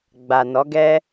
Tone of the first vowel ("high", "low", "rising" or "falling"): low